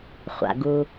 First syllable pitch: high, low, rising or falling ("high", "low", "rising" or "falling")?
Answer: low